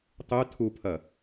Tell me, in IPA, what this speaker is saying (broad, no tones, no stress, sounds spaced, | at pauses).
tˤ ʉ tʰ u pʰ ɐ